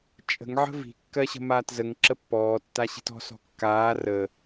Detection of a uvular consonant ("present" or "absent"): absent